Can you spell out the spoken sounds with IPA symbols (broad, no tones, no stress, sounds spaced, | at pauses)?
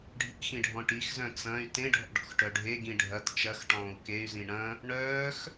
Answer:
ɖʱ ḭ x ĩ ɖʱ ɔ̃ ʈ i x z œ̃ t͡s ɐ̃ y̯ t ẽ ɖʱ ɔ̰ ɖ ɔ̰ x ʈ œ ɖʱ e ɡ ĩ ɖʱ ɐ t t͡ʃ ɐ x ʈ ɔ̃ː u̯ k e y̯ z ĩ ɳ ɐ̃ | ɳ œː x